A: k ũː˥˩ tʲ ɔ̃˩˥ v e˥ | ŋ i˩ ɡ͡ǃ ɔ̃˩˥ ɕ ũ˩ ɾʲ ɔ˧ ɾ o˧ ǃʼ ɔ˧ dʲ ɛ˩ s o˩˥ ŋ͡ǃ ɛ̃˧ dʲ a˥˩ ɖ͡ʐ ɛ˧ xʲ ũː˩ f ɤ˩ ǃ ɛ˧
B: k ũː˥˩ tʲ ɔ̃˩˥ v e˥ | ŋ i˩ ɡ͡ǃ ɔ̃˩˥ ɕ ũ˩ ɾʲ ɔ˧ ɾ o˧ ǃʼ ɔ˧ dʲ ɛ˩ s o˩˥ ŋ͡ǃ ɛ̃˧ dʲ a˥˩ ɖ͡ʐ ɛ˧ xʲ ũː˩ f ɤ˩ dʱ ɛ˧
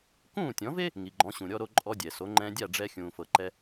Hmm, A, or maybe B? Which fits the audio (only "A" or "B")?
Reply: A